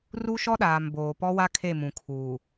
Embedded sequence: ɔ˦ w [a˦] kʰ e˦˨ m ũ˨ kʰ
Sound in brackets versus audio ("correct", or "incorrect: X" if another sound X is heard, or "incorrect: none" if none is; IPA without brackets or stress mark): correct